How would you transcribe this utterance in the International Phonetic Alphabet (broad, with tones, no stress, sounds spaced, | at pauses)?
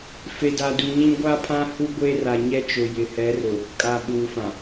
f e˨ d a˨ d u˨ ɲ ĩ˦ ɡʷ a˦ pʰ ã˦ h u˦ ɡʷ e˦ r a˨ ɲ ɛ˦ t͡ʃ ʊ˨ j ɪ˨ h ɛ˨˦ r ʊ˨ | kʼ a˨ ɓ uː˨ f ã˨